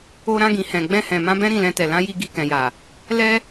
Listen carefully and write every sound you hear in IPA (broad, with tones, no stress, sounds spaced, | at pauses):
o˧ ɾ ã˧ ɡ ĩ˨ h ɛ̃˨ ɡ͡b ɛ̃˧ h ɛ̃˨ m ã˧ b ɛ̃˦ ɾ ĩ˦˨ l ɛ̃˧ t ɛ˨ l ã˧ j i˧ ɡ i˧ k ɛ̃˨ j a˨ | l ɛ˧